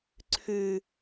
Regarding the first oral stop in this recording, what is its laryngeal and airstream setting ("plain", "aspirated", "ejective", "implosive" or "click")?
click